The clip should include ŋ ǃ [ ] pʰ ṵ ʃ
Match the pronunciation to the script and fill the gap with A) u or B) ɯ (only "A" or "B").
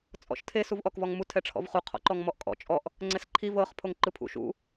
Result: B